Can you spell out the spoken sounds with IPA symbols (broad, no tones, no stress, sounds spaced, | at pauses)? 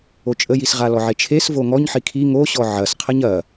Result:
o t͡ʃʼ ə j i s ʁ a l ɔ ʕ e t͡ʃʰ e s v o ŋ ɔ ɲ ħ i kʰ i ŋ o ɕ ɔ ʕ ɐ s qʰ ə ɲ ɐ